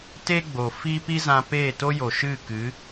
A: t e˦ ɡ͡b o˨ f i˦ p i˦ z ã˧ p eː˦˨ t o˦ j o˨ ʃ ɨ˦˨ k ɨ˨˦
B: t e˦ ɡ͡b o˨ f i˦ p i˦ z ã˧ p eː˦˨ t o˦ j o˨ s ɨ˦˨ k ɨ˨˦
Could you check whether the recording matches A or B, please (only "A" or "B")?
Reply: A